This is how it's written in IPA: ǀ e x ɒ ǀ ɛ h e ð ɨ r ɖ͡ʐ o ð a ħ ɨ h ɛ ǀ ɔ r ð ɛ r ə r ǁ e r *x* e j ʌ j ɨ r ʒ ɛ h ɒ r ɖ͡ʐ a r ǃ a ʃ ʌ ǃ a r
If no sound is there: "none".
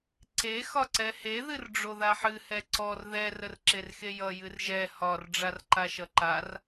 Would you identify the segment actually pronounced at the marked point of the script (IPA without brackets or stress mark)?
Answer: x